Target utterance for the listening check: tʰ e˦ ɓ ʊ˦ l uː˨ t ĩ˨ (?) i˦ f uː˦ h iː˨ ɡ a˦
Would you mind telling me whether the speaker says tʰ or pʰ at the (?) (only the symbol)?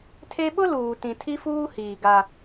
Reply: tʰ